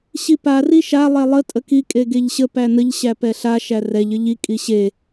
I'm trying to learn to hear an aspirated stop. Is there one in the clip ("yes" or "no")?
no